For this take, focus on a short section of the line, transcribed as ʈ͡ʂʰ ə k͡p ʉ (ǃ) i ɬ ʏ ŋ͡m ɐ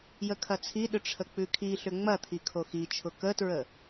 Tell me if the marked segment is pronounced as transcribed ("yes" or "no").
no